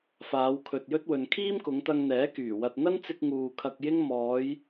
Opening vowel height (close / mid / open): open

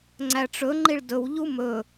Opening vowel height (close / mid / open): open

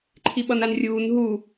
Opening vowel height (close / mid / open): close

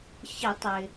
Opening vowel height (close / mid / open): close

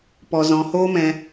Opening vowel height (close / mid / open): mid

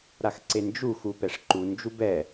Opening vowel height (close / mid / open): open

